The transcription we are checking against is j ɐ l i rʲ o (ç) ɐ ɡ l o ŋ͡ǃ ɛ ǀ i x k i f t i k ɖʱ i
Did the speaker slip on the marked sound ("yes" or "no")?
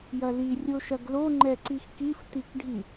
yes